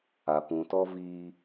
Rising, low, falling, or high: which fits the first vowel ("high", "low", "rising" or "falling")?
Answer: low